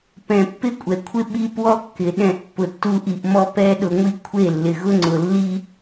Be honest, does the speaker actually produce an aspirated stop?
yes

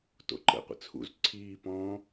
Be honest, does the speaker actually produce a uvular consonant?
yes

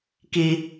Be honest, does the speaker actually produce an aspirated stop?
no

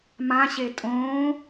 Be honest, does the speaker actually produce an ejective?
yes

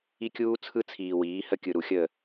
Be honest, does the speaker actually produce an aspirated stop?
yes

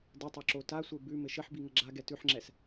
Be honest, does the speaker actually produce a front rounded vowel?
no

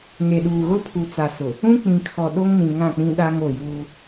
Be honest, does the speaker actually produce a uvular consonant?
no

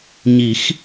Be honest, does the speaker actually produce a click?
no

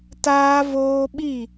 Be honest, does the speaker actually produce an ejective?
no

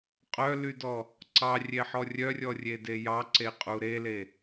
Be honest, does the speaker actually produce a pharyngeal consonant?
yes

